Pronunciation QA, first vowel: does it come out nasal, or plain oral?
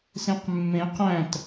nasal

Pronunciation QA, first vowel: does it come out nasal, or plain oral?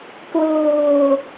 oral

